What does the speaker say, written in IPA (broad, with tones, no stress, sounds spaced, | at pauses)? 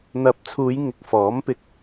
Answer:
n̪ ɐ˨˥ p̚ t͡sʰ uː˨˧ j ŋ ɪ˧ k̚ f ɔː˨˥ m p ɪ˨ k̚